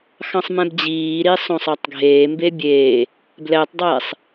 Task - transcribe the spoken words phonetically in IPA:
xɑ̃sˤmɛ̃bd͡ʑiːɾi sˤõsˤɑtˤɡʱeːmbe bʲeː | blɛtˤdˤɛːsˤ

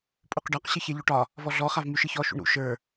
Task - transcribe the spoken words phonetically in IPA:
pʼuqɖɒq ɕɨçɛʎoʈɒ | vɔɮɔ χavmyʃɨçɔ ʃṵɳɾṵ ʃə˞

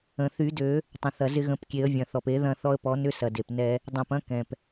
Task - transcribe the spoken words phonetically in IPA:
ə̃˩θy˨˩˦dø˨˩˦ | tˤə̃˩θɐ˩ zɪ˧ɣə̃˨˩˦pkʲe˨˩˦ə̯ vʲɐ̃˩θɔ˩pe˨˩˦ ðɐ̃˧ θɔ˧ə̯pɔ˨˩˦nʏ˧ sɐ˩de˩p nɛ˧ | dˤɛ̃˩pɐ̃˧ kɛ̃˩p

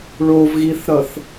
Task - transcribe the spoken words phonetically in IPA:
ɭovɣiθɾʌθ

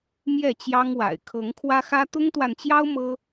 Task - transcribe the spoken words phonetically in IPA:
mjɛ˥˨t͡ɕjɑ˦ŋwa̰˨˩ɪ̯ kʰɤ˨˦ŋkʰwä˦xä˦ t̪ʊ˦ŋt̪wa˨nt͡ɕjɑ˦ʊ̯ mɤ˦

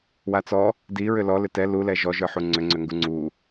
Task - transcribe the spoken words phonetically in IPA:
wat͡sɔ | di ɹʏlɔ lʏtɛ lulɛ ʒɔʒə˞ħu ŋ͡ǀʏŋ͡ǀʏŋɡu ŋ͡ǀu

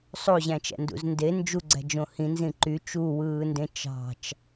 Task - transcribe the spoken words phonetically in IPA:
sˤoʑæ̃t͡ʃæ̰ndṵz nde nd͡ʒuɡ͡ǀæ̤d͡ʒõ hĩnzĩ ǃy t͡ʃuwɯːndẽ t͡ʃɑ̤t͡ʃ

